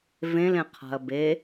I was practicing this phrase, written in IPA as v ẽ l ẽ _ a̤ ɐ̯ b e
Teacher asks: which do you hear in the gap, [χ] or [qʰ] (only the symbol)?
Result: qʰ